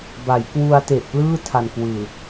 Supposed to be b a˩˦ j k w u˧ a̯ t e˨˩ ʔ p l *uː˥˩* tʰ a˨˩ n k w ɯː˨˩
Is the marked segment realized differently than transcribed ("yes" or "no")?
yes